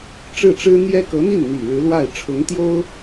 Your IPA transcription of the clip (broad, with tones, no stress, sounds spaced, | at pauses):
ʈ͡ʂ ɻ̩˥˩ ʈ͡ʂ ɻ̩˥ n̪ j ɛ˥ k ɤ˧˥ n̪ i˥˩ n n̪ i˨˩ ɻ ɻ̩˧˥ l w a˥˩ ɪ̯ ʈ͡ʂʰ ʊ˧˥ ŋ t̪ j o˥ ʊ̯